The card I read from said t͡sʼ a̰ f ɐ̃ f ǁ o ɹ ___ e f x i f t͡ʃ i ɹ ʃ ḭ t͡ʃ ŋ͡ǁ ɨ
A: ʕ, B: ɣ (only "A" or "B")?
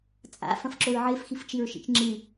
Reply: A